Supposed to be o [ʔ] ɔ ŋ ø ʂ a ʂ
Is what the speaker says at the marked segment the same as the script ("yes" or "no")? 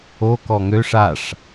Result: no